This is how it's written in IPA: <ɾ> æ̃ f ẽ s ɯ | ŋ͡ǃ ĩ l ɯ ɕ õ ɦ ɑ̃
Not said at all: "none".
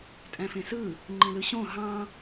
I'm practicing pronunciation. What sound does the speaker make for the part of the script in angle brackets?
tʼ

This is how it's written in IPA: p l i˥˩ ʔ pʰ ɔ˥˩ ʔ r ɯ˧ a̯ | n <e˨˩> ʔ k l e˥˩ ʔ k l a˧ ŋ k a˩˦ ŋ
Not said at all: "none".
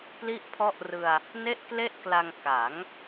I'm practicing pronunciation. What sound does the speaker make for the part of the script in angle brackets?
e˥˩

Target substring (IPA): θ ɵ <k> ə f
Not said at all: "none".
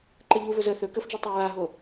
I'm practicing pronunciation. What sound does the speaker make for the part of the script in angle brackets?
k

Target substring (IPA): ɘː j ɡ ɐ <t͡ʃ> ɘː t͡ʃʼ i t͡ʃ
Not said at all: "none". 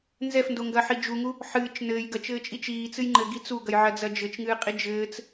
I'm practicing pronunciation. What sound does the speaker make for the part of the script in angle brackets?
t͡ʃ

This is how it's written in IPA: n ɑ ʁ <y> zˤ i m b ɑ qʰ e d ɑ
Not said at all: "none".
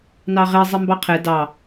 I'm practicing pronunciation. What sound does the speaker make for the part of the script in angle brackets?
e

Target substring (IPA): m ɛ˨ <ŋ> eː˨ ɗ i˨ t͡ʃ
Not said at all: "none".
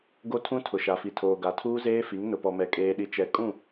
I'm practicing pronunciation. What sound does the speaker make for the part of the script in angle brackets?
kʼ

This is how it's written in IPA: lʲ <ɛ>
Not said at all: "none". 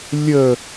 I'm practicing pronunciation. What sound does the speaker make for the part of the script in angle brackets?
ə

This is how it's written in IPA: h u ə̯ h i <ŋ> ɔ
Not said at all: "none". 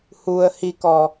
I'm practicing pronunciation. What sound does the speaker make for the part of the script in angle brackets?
k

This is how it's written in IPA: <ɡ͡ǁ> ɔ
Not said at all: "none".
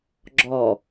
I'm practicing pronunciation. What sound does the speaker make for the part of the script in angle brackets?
ɡ͡ǁ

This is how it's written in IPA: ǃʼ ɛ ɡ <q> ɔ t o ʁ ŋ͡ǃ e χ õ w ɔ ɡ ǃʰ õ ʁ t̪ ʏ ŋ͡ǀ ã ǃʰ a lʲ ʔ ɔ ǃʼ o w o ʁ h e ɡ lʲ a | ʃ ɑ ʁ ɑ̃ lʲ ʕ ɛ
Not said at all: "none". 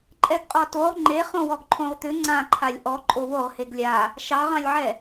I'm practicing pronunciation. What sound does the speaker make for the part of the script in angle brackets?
qʼ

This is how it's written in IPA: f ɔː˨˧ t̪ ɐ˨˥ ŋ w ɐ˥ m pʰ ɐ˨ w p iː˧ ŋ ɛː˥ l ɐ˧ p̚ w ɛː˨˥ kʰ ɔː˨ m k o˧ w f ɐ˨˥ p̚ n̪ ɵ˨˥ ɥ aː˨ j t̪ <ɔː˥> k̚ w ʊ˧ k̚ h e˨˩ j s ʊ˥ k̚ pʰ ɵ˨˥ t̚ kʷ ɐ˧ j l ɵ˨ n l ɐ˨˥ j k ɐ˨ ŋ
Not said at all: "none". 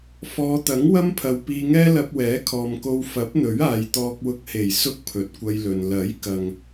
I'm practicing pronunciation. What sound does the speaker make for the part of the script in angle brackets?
ɔː˧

